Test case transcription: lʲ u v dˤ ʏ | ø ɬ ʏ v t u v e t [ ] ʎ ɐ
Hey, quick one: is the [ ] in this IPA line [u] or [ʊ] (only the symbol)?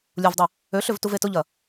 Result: ʊ